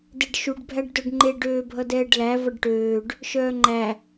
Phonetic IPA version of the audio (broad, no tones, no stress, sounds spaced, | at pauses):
d e ɖ ʃ u ɖ bʱ æ ɖ d œ ɖ ŋ͡ǃ e ɖ øː bʱ ʌ d ɛː ɖ l æ v ʌ ɖ ʈ øː ɖ | ʃ œː ŋ͡ǃ æ